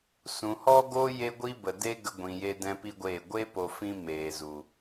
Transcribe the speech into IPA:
s ũ˨ h ɔ˦ ɡ o˦ j e˦ ɡʷ i˦ b ə˨ d e˦ ɡ ə˧ ɡʷ ĩ˨ j e˧ d ɛ̃˦ p i˦ ɡʷ eː˦˨ ɡʷ e˦ p o˨ f ĩ˦ m eː˨ z u˨

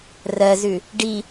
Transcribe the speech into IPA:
r ɜ z ʉ | ɖ i

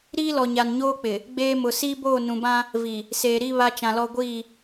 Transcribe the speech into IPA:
ɾ iː˦ l ɔ˨ ɲ a˨ n ɲ oː˦ k͡p ɪ˨ | ɡ͡b eː˦ m ʊ˨ s iː˦ b oː˦˨ n ũ˨ b ã˦ | v i˨ | s eː˨ ɾ i˦ β a˦ t͡ʃ ã˨ l ɔ˦ ɡʷ iː˦˨

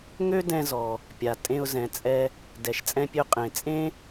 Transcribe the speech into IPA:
ŋ ø˥ d ɛ̃˧ z ɔ˩ | pʲ a˩ tʼ ẽ˧ ʊ̯ z ɛ̃˩ t͡sʼ ɛ˧ | d ɛ˩ ʃ t͡sʼ ɛ̃˧ pʲ ø˧ qʼ ẽ˩ t͡sʼ ẽ˥

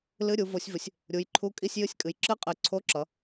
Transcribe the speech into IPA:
l ɨ˧˥˧ ɾʲ u˨˦ v o˨˦ sʲ v ɨ˨˦ sʲ | ɾʲ u˨˦ j ǃʰ u˧˥˧ kʼ i˧˥˧ sʲ j ɨ˧˥˧ sʲ kʼ ɨ˨˦ j ǁ ɨ˧˥˧ qʼ ɨ˨˦ ǀʰ o˧˥˧ ǁ ʌ˨˦

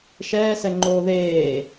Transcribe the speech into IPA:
ʃ ɛː s ɛ ŋ͡ǃ oː ð eː

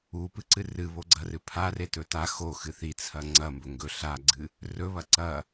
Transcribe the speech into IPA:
u p ɨ ǀ ɨ r ɨ β o ɡ͡ǀ ɐ r ɨ pʰ a r e t ɵ t a x o x ɨ θ i t͡sʰ ɐ ŋ͡ǀ ɐ m b ɵ ŋ ɡ ɵ ɬ a ɡ͡ǀ ɨ | r ɵ β ɐ ǀ ɐ

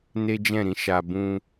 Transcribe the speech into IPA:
n e˦ d͡ʒ ɛ̃˦˨ ɾ ĩ˨˦ ʃ a˧ b ũ˧

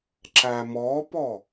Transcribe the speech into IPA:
ǁ æ m ɔ p ɔ

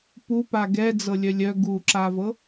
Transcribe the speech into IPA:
p u p a ɡ ɛ d͡z ɤ lʲ œ lʲ œ ɡ u ǁ a v ɤ

